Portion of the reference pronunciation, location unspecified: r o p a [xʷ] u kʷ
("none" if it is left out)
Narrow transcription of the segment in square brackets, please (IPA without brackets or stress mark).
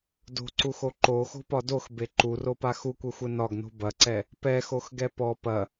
x